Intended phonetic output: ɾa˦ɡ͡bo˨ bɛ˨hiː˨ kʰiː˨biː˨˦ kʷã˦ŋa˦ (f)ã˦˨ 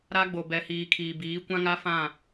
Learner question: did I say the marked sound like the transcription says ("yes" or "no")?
yes